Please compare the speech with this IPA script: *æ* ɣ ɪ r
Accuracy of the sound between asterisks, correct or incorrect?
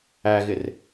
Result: correct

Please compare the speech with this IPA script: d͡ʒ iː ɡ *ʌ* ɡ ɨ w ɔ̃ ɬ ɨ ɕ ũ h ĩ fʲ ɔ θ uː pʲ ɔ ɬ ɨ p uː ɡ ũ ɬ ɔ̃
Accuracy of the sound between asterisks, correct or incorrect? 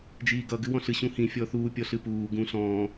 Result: correct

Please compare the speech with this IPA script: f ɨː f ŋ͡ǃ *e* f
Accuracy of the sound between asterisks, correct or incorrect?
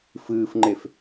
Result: correct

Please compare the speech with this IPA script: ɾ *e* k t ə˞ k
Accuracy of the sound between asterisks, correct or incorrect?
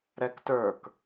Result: incorrect: ɛ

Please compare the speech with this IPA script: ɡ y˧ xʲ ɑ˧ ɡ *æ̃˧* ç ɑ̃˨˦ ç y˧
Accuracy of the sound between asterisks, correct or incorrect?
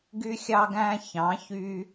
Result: correct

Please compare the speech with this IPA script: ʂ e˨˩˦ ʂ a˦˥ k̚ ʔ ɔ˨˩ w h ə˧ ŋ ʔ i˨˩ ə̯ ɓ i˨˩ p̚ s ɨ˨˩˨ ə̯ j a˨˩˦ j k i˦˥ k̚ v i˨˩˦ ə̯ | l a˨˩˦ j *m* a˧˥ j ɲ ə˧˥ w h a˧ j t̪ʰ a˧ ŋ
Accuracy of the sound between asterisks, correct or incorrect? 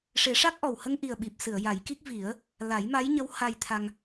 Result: correct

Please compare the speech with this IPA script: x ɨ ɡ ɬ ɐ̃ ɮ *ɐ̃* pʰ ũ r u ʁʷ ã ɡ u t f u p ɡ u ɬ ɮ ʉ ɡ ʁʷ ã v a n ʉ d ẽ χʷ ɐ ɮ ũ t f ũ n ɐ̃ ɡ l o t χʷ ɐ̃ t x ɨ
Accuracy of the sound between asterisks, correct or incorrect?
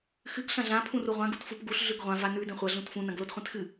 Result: incorrect: ã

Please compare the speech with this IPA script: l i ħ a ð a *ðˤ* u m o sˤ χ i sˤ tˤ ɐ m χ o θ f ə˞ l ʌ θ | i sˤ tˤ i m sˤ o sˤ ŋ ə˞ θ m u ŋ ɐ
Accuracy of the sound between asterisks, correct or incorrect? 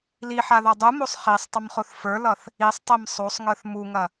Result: incorrect: dˤ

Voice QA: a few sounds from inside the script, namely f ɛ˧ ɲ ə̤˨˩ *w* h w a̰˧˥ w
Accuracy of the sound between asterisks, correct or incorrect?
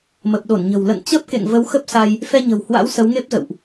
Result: correct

